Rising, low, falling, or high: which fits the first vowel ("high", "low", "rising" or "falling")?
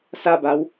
falling